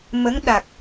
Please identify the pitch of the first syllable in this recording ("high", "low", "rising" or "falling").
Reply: rising